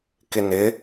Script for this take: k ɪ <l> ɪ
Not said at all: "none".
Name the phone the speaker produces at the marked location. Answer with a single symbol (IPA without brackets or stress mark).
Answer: n